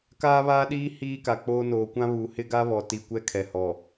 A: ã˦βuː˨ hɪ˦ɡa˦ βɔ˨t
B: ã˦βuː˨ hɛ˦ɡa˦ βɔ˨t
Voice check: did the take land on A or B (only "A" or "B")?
A